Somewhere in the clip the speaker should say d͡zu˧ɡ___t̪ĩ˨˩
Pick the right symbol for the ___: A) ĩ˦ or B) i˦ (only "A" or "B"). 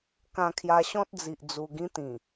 A